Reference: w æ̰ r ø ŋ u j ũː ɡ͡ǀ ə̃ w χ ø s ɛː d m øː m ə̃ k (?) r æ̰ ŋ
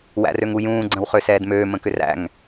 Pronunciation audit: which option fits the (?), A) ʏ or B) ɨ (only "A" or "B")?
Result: A